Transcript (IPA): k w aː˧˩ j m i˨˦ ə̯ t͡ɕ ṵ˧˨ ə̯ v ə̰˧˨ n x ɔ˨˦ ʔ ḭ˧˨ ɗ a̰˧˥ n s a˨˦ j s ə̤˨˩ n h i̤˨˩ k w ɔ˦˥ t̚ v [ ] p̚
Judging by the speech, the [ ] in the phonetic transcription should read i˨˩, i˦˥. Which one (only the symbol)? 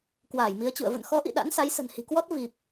i˨˩